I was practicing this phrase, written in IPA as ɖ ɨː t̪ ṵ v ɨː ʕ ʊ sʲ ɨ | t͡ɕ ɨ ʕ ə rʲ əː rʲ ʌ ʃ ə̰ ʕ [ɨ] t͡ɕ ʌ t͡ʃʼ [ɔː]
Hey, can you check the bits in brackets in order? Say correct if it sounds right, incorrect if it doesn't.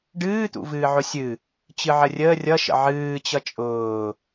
incorrect: ɨː, incorrect: ʊː

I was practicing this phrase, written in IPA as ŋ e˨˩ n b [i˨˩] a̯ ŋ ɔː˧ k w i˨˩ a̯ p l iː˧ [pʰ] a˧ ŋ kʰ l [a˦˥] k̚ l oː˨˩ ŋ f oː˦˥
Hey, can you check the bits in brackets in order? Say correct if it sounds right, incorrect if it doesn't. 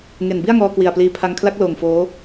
incorrect: i˥˩, correct, correct

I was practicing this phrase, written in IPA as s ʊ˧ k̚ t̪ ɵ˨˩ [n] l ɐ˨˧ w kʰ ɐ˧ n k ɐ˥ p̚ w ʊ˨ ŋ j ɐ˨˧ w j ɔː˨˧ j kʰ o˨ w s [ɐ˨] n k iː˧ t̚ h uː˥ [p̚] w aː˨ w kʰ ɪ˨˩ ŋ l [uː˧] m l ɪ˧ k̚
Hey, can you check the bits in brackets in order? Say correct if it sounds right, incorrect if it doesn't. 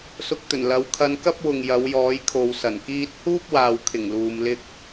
correct, incorrect: ɐ˨˩, correct, incorrect: uː˨

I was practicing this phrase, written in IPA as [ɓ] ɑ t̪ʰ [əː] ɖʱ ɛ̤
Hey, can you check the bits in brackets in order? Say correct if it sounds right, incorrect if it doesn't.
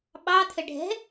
correct, incorrect: ə

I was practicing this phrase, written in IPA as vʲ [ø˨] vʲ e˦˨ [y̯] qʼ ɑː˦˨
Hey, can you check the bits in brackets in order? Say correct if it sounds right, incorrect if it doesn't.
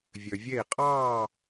correct, incorrect: i̯

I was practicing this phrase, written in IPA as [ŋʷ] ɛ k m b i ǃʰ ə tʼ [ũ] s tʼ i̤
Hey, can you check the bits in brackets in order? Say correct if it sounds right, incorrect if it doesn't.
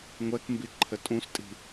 correct, correct

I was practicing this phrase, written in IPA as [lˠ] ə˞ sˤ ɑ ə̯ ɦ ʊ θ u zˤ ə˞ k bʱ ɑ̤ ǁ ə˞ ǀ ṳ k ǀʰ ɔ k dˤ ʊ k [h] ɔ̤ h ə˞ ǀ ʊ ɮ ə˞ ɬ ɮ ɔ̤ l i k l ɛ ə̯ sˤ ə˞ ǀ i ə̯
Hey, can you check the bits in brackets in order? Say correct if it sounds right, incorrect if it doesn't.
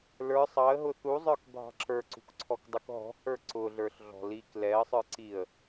incorrect: l, incorrect: ɦ

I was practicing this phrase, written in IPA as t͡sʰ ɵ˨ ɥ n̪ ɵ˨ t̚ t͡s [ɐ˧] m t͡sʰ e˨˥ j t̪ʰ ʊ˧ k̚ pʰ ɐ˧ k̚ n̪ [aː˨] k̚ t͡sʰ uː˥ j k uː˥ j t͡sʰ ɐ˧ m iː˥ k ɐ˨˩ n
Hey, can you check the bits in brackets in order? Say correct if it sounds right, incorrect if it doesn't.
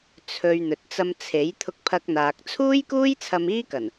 correct, correct

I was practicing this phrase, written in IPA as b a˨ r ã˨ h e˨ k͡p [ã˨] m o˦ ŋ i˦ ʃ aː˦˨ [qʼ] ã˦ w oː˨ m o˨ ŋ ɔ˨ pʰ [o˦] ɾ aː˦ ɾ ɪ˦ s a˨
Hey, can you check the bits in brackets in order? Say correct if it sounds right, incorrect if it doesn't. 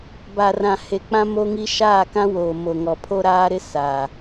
incorrect: ã˦, incorrect: k, correct

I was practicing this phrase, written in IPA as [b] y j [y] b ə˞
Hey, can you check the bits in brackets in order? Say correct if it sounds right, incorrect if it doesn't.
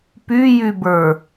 incorrect: p, correct

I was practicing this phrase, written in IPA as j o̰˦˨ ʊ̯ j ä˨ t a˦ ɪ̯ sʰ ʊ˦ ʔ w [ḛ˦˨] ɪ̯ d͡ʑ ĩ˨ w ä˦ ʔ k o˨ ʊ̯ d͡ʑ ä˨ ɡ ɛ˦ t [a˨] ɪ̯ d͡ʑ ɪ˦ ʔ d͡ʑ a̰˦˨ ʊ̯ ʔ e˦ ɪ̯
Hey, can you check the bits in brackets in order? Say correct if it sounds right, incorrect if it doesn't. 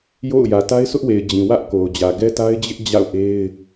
incorrect: e˨, incorrect: a˦

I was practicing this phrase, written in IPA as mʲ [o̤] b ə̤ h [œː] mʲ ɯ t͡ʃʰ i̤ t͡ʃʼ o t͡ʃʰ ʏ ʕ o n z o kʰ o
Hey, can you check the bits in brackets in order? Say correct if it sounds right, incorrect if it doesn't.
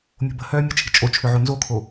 correct, correct

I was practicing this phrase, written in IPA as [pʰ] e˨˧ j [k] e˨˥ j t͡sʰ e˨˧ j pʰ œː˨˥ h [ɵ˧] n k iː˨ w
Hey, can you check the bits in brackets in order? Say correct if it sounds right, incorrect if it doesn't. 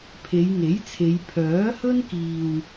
correct, incorrect: ŋ, incorrect: ɵ˥

